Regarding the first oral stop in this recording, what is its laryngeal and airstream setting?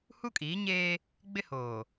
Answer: ejective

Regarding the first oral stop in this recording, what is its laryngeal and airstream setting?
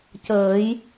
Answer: plain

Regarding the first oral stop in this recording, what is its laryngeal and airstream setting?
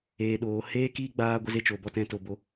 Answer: implosive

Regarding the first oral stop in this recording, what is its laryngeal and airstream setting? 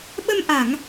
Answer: implosive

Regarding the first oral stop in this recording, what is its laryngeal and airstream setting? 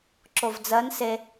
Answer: click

